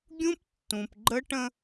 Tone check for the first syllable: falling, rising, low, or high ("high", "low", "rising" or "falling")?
high